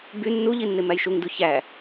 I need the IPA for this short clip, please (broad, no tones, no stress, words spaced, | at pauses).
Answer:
by nːuʎi nːemæjʃuŋdu çæ